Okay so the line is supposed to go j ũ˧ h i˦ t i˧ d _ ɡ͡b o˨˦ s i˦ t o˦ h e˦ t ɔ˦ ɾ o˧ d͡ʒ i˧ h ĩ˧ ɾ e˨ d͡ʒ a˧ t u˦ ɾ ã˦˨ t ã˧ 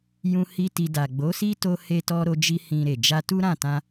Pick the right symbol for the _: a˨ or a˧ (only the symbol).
a˨